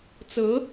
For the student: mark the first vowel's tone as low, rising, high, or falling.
rising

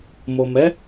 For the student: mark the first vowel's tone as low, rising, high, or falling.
low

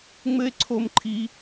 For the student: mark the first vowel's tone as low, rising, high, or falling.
high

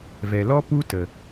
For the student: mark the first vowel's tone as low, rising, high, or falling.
low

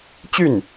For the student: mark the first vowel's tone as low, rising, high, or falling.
falling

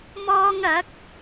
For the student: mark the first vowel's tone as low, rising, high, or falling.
high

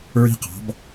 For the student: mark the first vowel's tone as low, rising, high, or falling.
high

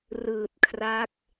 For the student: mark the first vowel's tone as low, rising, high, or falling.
low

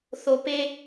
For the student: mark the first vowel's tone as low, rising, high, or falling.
low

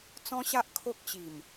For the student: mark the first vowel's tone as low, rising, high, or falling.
high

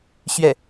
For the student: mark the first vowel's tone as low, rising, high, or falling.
falling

